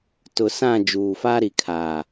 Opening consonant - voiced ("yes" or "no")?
no